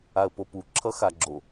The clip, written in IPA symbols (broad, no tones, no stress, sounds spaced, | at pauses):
a ə̯ p o p u ǁʰ ʌ x a ɡ͡ǁ o